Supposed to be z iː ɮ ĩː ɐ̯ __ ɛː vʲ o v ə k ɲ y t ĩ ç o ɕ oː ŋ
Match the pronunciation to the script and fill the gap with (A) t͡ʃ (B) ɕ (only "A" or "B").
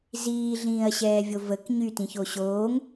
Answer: B